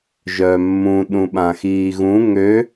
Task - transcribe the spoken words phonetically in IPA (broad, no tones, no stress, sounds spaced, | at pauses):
ʒ œ mː ũ ɗ ũ ɓ ã x iː ɣ ũ ŋ ø